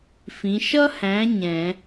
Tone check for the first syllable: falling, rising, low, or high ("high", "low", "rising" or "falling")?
rising